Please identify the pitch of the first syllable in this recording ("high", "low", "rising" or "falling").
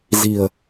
low